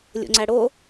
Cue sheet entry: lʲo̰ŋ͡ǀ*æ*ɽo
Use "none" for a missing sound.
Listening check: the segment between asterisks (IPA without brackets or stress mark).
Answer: æ